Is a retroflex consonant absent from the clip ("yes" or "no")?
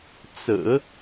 yes